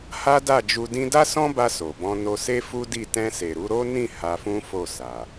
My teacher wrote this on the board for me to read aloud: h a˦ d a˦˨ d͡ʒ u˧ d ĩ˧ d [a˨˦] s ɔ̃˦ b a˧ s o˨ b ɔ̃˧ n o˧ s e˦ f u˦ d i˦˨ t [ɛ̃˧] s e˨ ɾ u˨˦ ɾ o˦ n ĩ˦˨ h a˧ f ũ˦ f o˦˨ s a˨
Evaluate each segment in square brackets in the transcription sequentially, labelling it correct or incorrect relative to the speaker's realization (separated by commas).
incorrect, correct